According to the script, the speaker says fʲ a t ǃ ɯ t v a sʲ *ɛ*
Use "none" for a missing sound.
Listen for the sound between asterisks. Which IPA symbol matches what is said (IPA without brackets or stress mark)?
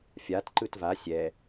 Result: ɛ